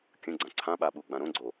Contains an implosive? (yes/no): yes